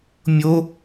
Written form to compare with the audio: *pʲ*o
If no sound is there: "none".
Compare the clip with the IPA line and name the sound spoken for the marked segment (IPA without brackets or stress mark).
mʲ